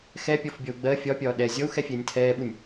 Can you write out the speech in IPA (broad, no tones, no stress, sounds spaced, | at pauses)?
x ɛ pʲ ɔ f bʲ ɔ u̯ ɡ͡b ɜ fʲ ɒ pʲ ɒː ɗ ɛ zʲ ɔ u̯ x ɛ fʲ ɛː nʲ tʰ ɛː ɓ u nʲ